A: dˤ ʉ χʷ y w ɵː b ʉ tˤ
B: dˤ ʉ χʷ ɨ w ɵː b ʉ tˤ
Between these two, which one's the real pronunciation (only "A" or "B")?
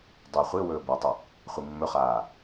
B